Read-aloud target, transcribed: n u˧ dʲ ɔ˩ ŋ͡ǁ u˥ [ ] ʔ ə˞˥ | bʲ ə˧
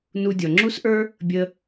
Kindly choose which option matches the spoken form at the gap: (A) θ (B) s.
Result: B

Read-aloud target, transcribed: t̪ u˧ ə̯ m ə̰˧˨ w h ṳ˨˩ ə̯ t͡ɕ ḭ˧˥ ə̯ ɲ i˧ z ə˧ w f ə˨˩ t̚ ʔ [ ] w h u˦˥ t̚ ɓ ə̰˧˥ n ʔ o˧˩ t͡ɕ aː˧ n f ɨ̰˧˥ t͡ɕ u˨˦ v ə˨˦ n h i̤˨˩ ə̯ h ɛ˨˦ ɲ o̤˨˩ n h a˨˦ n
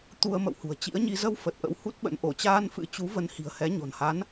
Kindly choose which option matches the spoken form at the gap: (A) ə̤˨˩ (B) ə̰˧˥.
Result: B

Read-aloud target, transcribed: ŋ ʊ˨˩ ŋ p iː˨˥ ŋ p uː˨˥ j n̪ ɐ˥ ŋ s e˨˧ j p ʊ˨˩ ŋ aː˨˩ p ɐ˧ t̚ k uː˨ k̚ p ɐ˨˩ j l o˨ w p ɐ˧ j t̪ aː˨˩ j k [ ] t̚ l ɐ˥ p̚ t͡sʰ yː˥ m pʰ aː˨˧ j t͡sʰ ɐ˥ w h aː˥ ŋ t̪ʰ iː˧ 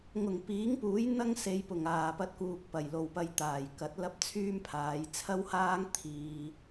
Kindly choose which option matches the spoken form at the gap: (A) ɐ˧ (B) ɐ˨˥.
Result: B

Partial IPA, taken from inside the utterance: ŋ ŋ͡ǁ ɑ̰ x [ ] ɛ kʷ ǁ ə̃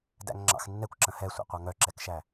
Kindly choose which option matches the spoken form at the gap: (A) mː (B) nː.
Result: B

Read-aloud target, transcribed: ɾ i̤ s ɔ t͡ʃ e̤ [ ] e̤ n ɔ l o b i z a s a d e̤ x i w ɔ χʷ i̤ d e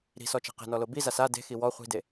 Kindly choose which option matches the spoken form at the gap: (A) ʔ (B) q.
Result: B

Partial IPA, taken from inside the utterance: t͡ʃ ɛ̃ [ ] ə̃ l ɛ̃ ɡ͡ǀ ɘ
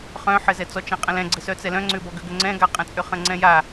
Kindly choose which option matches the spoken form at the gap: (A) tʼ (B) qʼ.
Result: B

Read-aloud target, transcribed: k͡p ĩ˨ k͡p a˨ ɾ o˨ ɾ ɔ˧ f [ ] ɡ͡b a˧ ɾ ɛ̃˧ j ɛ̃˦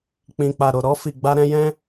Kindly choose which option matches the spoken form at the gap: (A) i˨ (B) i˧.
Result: A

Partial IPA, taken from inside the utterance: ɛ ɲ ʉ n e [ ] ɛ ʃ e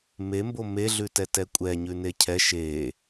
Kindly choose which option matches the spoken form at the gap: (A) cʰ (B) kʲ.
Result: A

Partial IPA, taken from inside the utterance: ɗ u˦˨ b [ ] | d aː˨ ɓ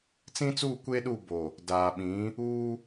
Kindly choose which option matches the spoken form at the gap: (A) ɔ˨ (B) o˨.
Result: B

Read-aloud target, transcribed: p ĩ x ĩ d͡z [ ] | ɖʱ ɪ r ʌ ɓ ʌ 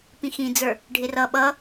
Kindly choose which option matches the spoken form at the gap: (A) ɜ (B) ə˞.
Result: B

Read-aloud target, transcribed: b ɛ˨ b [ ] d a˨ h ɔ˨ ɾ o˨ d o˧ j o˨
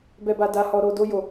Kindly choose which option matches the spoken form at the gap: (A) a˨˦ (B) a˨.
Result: B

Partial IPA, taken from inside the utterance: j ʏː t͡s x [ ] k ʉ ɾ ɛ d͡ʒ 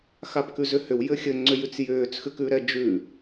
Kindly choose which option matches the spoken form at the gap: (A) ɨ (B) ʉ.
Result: B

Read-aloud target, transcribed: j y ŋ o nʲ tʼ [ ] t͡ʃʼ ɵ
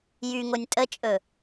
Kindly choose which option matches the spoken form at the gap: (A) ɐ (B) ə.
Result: B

